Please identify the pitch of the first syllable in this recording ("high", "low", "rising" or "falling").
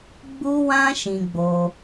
high